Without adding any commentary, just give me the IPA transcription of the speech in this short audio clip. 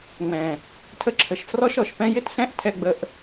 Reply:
ŋ͡m ɛ̃˨ | tʰ ə˧ ǁʰ ə˨ ʃ f r ɔ˦ ʃ ɔ˨ ʃ p ɛ̃˦ j ɪ˦ t s ɛ̃˦ ʔ tʰ ɛ˧ ɡ͡b ə˧ ʔ

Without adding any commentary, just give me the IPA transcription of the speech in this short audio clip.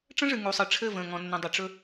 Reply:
ʈ͡ʂ ə̃˦ ʐ ɨ˨ ŋ u˨ sˤ ɨ˨ ʈ͡ʂʰ ɘ˦˨ v ə̃ː˨ ŋ ɔ̃˨ nː ə̃˨ dˤ ə˨ ʈ͡ʂ ɵ˦

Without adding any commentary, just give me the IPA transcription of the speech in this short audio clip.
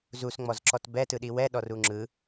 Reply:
z u s ŋ͡m ɔ z ǁ ɔ t b ɛ t ɯ ɗ i w ɛ ɗ ɔ r u ŋ͡ǁ ɯ

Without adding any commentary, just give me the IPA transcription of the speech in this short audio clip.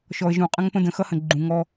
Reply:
ʃ ɔ˨ ə̯ ʒ ũ˨ qʼ ə̃˦ ŋ p ə̃˦ d ə̃˨ x ʌ˦ h ə̃˨ ɡ͡ǃ ũ˨ ŋ ɔ˦

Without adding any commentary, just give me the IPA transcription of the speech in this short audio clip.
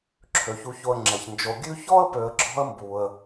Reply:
ǁʰ ø˩ ç u˨ ç o˨ ə̯ ŋ͡ǁ ɛ˩ ç n d͡ʒ o˨ ɡʲ ʉ˦ ç ɔ˥ ə̯ p ø˨ ə̯ ɡ͡ǁ ɔ̤˥ ə̯ m b u˩ ə̯

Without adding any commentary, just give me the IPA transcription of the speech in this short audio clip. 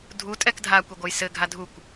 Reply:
dʱ u tʼ ɛ k dʱ a kʷ e ɡʷ ɐ j s ɘ ɡʱ a dʱ u kʷ

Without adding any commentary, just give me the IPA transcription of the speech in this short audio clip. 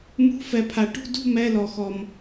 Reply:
m ṳ˧˥˧ f ɛ˨ pʰ a˨ ʈ ṳ˥˨ d ṳ˥˨ m ɛ˧˥˧ l ɔ˨ x ɔ˨ m

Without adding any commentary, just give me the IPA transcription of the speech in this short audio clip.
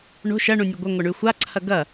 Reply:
ɳ o̤ ʃ ɐ ɳ ũ nʲ ɯ ɡʷ a ŋʷ ɐ ɳ y xʷ a ǀʰ ɐ ɡ ɐ

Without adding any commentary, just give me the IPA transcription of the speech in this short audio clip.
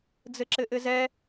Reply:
d͡z ɘ ǁ ɘ ʔ ɘ z ɛ

